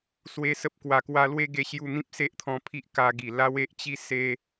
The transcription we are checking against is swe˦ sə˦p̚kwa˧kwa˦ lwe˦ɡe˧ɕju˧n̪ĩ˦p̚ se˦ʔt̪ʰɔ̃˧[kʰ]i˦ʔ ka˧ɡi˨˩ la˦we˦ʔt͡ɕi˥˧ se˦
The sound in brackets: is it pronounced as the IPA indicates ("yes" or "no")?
no